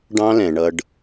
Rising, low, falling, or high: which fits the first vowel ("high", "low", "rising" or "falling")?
high